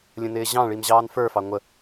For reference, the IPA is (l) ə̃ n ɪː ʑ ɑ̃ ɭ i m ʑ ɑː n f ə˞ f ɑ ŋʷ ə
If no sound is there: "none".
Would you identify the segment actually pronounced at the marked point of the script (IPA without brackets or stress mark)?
lʲ